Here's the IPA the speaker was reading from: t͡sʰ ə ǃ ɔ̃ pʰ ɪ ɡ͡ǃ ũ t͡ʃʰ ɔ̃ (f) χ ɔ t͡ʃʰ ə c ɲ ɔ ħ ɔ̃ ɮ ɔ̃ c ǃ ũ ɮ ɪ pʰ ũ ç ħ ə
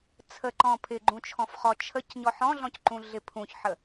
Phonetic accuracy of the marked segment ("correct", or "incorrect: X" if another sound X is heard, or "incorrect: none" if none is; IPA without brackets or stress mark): correct